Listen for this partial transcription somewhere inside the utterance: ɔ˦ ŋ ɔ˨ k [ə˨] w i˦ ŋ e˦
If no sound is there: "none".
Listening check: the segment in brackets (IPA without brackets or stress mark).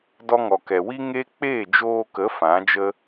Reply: ɛ˨